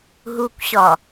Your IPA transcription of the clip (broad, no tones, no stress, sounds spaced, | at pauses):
ɦ u kʷ ɕ ɒ